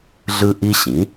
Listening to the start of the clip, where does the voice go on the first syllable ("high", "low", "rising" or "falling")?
high